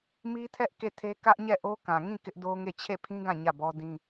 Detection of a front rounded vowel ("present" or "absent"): absent